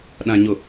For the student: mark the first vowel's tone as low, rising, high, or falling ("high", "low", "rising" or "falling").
low